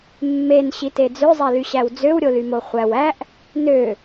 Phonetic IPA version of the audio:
mː e n ɕ i t e d͡z ø zˤ æ l y ɕ æ w d͡z ø w ɾʲ o l y m o χʷ æ w æ ʔ | n ø

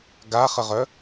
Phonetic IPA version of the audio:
ɡ a χ ə ʁ œ

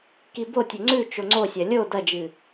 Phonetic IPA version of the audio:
k i b o tʲ ɵ ŋ͡ǀ ʉ t͡ʃ o ŋ͡ǀ o sʲ ɐ lʲ o d ɐ d͡ʒ ɨ

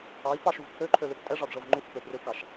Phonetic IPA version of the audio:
ɑ i̯ p ɑ ʃ u v kʰ ø ǃʰ ø l ø p tʼ ɛ ʐ ɑ d ʐ ɤ v ŋ͡ǃ u h ɛ p ø p r ʏ u̯ k ɑ ʃ

